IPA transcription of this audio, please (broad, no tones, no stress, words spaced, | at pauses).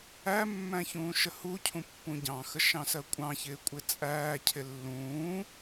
æmːæ̃ çũːʃəhucʰũ pːũɟɑ̃xə ʃɑ̃sɜkʷʼɑ̃çɪː kʷʼɪt͡sʼæːcʰɪ lːũː